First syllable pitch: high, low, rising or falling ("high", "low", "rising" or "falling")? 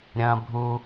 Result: high